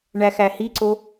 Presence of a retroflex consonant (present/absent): present